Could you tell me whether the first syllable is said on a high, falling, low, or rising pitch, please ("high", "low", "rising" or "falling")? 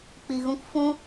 low